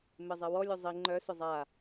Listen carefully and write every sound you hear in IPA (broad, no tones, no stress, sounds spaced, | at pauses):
m e zˤ e w ɔ lʲ ʊ zˤ i ŋ͡ǃ œ s ʊ zˤ a